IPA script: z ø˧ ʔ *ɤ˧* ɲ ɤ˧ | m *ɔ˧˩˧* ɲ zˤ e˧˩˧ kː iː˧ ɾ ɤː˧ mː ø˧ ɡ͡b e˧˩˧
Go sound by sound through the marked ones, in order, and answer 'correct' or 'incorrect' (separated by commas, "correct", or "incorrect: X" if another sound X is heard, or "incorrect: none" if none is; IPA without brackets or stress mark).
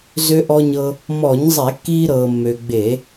incorrect: ɔ˧, correct